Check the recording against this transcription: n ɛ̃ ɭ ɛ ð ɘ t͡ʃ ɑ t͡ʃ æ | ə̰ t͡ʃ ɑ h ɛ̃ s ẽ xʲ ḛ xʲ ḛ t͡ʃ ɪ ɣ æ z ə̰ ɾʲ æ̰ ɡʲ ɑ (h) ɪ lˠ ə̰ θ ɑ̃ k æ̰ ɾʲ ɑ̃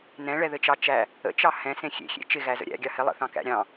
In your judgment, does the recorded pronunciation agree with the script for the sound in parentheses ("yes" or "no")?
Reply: yes